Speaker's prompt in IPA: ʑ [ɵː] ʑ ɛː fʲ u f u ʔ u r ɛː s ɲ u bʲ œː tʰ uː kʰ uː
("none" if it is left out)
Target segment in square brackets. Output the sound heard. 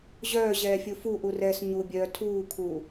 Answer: œː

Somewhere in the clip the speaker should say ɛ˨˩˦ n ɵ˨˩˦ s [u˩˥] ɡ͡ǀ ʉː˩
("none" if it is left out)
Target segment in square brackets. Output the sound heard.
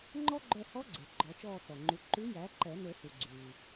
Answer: u˩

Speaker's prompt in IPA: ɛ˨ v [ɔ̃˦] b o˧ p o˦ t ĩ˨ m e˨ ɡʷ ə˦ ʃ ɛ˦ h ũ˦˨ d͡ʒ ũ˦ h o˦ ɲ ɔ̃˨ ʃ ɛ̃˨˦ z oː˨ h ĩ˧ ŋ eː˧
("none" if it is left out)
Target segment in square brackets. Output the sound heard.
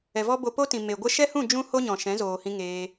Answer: ɔ˦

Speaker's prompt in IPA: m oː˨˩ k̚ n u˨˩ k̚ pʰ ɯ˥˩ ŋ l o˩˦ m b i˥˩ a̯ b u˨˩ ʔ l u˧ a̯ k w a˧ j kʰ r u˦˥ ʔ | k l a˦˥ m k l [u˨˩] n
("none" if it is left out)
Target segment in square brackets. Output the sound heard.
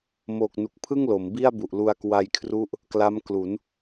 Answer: u˩˦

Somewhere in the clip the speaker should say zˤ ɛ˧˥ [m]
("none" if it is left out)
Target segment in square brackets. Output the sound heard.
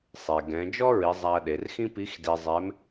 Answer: m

